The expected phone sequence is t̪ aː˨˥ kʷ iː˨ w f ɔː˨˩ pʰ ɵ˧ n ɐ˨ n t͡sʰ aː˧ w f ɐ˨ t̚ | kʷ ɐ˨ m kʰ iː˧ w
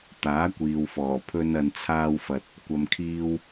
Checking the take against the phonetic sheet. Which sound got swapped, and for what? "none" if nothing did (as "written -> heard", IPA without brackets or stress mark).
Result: none